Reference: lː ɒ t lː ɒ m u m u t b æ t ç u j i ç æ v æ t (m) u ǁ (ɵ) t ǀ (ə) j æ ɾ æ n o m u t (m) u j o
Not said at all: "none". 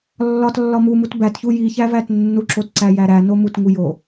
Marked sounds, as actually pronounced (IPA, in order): nː, o, æ, ŋ

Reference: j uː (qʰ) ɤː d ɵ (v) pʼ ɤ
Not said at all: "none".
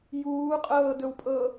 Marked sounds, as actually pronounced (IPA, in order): qʼ, w

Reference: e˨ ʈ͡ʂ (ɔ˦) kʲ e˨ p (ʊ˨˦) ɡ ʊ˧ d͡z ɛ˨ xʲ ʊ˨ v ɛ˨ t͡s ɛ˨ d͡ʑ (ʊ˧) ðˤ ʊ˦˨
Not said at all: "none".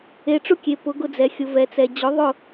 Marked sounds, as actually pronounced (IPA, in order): ʊ˦, ʊ˨˦, ʊ˨˦

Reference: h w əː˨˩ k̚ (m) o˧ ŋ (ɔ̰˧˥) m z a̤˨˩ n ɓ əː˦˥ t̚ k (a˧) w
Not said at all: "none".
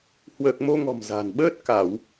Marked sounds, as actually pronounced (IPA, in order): m, ɔ̤˨˩, a˧˩˨

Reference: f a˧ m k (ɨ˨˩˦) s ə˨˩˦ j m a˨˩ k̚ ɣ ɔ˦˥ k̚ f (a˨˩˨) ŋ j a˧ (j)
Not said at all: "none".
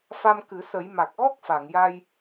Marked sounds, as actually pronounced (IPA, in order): ɨ˨˩˦, a˨˩˨, j

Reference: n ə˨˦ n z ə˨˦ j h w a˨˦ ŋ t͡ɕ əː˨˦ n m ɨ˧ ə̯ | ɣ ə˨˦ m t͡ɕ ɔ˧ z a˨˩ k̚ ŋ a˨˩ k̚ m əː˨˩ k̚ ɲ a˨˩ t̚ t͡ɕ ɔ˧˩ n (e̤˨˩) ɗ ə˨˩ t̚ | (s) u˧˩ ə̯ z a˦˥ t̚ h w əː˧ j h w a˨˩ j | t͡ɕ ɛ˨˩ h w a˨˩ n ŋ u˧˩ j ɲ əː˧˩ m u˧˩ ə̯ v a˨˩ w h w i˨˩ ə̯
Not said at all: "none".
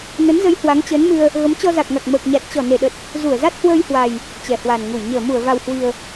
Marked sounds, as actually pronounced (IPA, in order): e˧˩, z

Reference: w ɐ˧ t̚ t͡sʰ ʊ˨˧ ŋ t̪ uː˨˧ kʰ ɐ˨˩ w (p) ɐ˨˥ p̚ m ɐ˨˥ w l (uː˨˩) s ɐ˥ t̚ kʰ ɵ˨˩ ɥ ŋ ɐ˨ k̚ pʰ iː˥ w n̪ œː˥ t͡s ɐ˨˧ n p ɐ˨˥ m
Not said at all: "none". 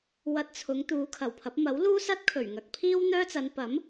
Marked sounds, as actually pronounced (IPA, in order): pʰ, uː˥

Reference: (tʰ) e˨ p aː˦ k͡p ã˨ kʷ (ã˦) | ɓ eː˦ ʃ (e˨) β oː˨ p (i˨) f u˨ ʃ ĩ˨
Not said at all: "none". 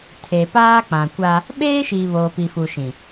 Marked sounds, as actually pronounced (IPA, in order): tʰ, a˦, i˨, i˨

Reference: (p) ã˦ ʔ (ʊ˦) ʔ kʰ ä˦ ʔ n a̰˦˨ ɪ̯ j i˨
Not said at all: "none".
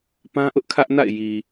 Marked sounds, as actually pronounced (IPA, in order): p, ʊ˦

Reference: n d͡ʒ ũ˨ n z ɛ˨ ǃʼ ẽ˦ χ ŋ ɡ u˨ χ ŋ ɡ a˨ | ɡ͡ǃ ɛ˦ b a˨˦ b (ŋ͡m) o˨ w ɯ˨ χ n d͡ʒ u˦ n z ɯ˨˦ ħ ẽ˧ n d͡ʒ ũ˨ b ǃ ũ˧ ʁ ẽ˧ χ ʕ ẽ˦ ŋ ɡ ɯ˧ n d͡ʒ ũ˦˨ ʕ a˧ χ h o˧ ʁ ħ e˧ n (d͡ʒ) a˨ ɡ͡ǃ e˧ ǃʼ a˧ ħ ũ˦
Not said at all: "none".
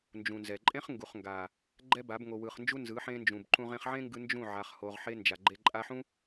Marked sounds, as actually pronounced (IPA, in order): ŋ, d͡ʒ

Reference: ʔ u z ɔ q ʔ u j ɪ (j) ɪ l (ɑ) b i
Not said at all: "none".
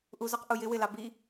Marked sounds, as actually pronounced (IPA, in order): w, ɑ

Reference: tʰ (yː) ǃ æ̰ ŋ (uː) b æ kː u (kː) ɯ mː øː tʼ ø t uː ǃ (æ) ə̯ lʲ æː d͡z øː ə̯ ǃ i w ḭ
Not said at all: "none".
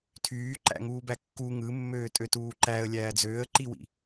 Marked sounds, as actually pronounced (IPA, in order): yː, uː, ŋ, æ

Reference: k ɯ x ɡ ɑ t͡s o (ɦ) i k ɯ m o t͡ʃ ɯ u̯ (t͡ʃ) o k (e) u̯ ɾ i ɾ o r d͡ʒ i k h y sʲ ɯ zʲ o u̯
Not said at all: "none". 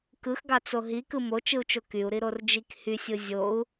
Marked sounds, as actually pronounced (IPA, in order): ɦ, t͡ʃ, y

